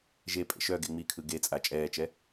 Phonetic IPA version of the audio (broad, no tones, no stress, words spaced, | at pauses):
ʒe pʼḛʃœɡe ŋ͡mikʰɯ ɡet͡sʼa t͡ʃʼɛːt͡ʃɛ